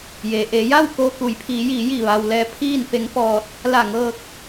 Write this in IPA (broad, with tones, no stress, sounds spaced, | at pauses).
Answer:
j e˩ ʔ e˩˧ j a˥˨ w k oː˧ k u˩˧ j pʰ iː˩˧ j iː˩˧ j i˧˩ ʋ a˩ w l ɛː˧ pʰ iː˥˨ n f e˧˥ ŋ p ɔː˧ t̚ | l a˧˩ ŋ ɤː˧ k̚